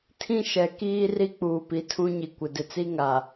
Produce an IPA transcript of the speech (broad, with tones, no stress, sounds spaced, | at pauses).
tʰ ĩ˦ ʃ ɛ˨ k iː˦ r i˦ k͡p uː˨ p i˨ tʰ ũ˦ ɲ i˨ kʷ ɪ˨ d ɪ˨ t͡s i˦ ŋ a˨